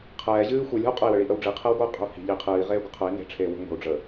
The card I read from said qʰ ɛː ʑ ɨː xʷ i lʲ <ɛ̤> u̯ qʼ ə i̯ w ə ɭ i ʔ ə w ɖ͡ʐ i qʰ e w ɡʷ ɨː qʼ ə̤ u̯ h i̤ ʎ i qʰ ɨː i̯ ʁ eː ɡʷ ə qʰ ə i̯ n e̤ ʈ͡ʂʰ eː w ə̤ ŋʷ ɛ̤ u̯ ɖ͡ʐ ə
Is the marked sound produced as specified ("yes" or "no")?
yes